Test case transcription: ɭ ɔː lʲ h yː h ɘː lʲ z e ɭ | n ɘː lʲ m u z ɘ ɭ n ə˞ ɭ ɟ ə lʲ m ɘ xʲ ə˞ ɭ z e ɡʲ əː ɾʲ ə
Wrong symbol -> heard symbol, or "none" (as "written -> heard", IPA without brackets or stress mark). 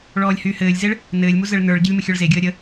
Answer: none